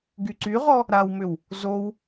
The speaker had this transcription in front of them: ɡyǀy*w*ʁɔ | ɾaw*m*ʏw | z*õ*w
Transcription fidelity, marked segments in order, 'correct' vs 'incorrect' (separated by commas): incorrect, correct, incorrect